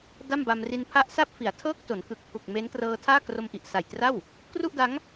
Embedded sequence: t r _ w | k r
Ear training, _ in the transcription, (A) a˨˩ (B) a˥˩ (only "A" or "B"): B